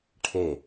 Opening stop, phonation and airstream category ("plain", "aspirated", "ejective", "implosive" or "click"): aspirated